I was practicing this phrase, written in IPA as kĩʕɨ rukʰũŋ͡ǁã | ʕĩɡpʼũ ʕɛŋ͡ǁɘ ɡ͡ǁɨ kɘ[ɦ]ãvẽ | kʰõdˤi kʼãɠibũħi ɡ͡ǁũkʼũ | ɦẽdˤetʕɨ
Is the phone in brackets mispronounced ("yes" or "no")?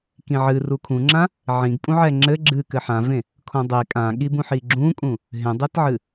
yes